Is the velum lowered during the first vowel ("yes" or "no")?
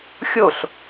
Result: no